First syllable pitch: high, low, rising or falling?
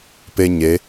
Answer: high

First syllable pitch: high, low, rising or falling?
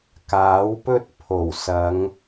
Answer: rising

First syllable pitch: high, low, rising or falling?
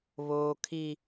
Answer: high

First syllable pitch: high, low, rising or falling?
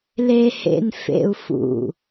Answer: low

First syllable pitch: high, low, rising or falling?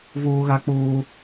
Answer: high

